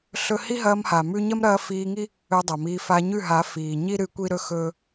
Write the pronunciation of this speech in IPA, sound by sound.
ɬɵ˧ hi˦ɦɐː˧m ha˨mʉ˦ ɲɐ˦mɾɐː˧fiː˧ŋi˦ | ɵː˧dˤɐ˨miː˧ fa˧ɲʉ˦˨ɦa˨˦ fiː˨ɲi˦ ɾɨ˦kʷi˦ɾɵ˦xɵː˦

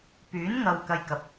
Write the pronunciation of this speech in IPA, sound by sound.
pyː˨˥nŋɐ˨w kɐ˧jkɐ˨p̚

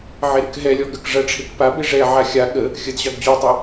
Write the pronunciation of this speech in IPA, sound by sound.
ʕeɾɨkɦɛlʲɔ ɡək ʐɐʈ͡ʂʰek pabe ʐɛʕa xʲa ɠə | xʲəd ʑɑɡd͡ʑotˤo

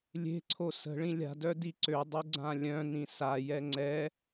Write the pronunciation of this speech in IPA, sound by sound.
lʲe̤ǀʰo sə̤ɭĩ lʲa̤dœ diǀødˤu ɡ͡ǀãlʲœ̃nĩ sajɛ ŋ͡ǀɛ

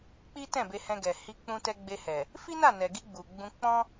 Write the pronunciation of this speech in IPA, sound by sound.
k͡pi˦tɛ̃˦˨be˧hɛ̃˧ ɡɛ˨hi˧k͡pũ˧tɛ˧ ɡ͡be˧hɛ˨ | fi˦na˦˨nɛ˨ɡi˧ ɡ͡bu˨ɡ͡bũ˧ k͡pɔ̃˦

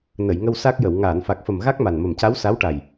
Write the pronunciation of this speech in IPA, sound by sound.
nə˨˩˨jŋə˧w sa˦˥k̚jə˨˩˨w ŋaː˨˩˨nfa˨˩k̚fə˨˩m ɣa˦˥k̚ma˨˩nmə˨˩m ca˧˥wsa˧˥wʈa˨˩j

